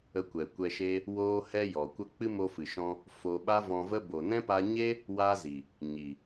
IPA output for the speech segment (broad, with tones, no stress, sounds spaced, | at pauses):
ə˧ kʷ ɛ˨ kʷ ɛ˧ ʃ e˦ | w oː˧ h ɛ˧ j ɔ˨ kʷ ə˦ k͡p ɨ˦ m o˧ f ɨ˨ ʃ ɔ̃˧ | f o˧ ɓ a˦ v ɔ̃˧ v ə˦ b o˨ n ɛ̃˦ p a˧ ɲ e˦ | w a˦ z i˨ | ɲ i˨